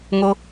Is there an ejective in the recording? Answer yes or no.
no